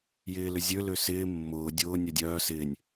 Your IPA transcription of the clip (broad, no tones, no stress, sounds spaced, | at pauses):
j ɪː l ʏ zʲ ø l ø s ɪː mː ʊː dʲ ʊː nʲ œ dʲ œː s ɪː nʲ